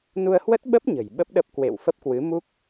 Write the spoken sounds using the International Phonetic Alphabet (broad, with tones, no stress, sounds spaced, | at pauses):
n u˧ ə̯ h w ə˦˥ t̚ ɓ ə˦˥ p̚ ɲ ə̤˨˩ j ɓ ə˦˥ p̚ ɗ ə˦˥ p̚ k w ḛ˧˨ w f ə˦˥ p̚ k w ɨ˨˦ m u˦˥ k̚